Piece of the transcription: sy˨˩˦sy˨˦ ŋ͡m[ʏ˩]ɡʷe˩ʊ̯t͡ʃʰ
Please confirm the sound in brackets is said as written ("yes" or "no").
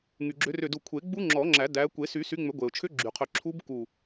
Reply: no